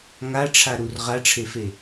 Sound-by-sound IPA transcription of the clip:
ŋ a ʈ͡ʂʰ a ɾ u r ʁ a ʈ͡ʂʰ e f e

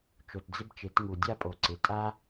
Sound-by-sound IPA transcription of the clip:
t͡ʃ o˨ t d͡z ɪ˦ b t͡ʃ e˨˦ t ŋ u˨ dʲ a˦ pʼ o˨ ǀ ɪ˨ tʼ a˦

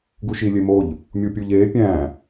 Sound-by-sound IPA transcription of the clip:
ɡ u ʃ i lʲ e m o ʎ | mʲ u pʲ u ʎ e pʲ æ̃

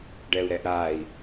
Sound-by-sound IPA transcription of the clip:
ɖ ɛ u̯ ɾ ɛ ʔ ɾ a i̯

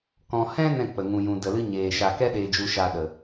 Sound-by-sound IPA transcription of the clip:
k ɔ̃˨ h ɛ̃˦ n ɛ̃˦˨ k͡p ə˨ ŋ ũ˨ j ũ˨ d ə˨ l ɨ˦ ɲ eː˨ ʃ a˨ k ɛ˦ ɗ eː˧ d͡ʒ u˧ ʃ a˧ ɗ ə˨

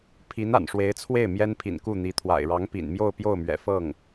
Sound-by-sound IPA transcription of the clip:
pʰ i˧˥ n a̰˨˩ n ʂ w e˧˥ ɪ̯ t͡sʰ w e˥˩ ɪ̯ m j ɛ˥ n pʰ ḭ˨˩ n k u˥˩ n̪ i˧˥ t̪ʰ w a̰˨˩ ɪ̯ ɻ ɑ˧˥ ŋ p ḭ˨˩ n m j o˥˧ ʊ̯ p j o˥˩ ʊ̯ m ɥ ɛ̰˨˩ f ɤ˥˩ ŋ

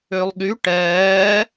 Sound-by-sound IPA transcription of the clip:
ø lˠ ɠ y ʈ ɛː

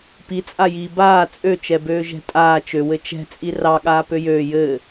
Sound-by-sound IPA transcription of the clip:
p i t͡sʼ a j iː b aː t͡sʼ ø t͡ʃ ɛ b øː ʒ ɛ̤ tʼ aː t͡ʃ ø w ɘ t͡ʃ ɛ̤ t͡sʼ i r ɑ ɠ aː p ø j øː j ɘː

